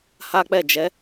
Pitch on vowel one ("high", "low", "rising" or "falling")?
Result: high